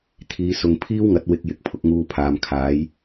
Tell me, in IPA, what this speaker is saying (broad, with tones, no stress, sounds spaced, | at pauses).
t̪ʰ iː˨ s ʊ˨ ŋ pʰ iː˥ w ŋ ɐ˨˥ t̚ w ɪ˧ k̚ j ɪ˨˥ k̚ pʰ ʊ˧ k̚ ŋ uː˧ pʰ aː˨ m kʰ aː˨˥ j